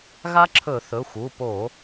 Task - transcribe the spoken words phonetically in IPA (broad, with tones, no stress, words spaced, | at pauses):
ɣa˦˥ǁʰɵ˧˩˧θɵ˩˧˩xʷ u˩˧˩po˧˩˧